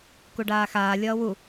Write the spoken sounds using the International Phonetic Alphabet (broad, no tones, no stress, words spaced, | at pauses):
kuɖaːxaː lʲʌːwu